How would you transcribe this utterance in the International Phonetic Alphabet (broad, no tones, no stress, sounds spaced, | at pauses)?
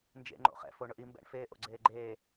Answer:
n d͡ʒ ḛ ŋ͡ǃ o̰ χ ɛ̰ f o ɳ ʊ ʔ i m b ɛ̰ ɳ f eː ʔ o̰ ɡ͡ǀ eː ɡ͡ǃ eː